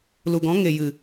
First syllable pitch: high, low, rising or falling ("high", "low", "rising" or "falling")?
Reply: low